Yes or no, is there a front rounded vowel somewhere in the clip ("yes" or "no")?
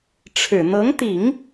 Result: no